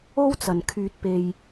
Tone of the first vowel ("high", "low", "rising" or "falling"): high